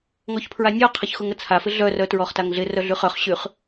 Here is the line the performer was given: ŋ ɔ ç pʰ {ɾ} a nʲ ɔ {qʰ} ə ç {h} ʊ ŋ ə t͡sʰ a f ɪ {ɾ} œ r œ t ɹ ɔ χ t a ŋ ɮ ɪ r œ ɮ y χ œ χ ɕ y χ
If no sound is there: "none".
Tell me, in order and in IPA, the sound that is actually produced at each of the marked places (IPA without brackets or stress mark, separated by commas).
ɹ, qʰ, x, ɮ